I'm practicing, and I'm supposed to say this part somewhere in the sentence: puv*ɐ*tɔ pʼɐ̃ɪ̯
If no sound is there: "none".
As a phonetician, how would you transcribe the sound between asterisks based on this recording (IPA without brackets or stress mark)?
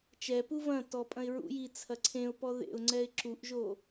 ɐ̃